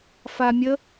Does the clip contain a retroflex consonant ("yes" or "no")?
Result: no